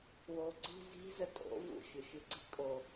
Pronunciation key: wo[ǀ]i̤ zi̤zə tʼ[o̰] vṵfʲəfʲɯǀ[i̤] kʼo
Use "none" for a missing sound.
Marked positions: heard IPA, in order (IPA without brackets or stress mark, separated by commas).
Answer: ǀ, o̰, i̤